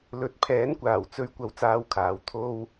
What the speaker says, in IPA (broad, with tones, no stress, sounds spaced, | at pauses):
l ɵ˨˥ t̚ pʰ ɛː˨˥ n kʷ aː˨˩ w t͡s ɵ˧ ɥ kʷ ɐ˥ w t͡s aː˥ w kʰ aː˨˥ w t̪ʰ o˥ w